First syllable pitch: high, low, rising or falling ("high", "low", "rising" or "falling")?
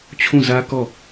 falling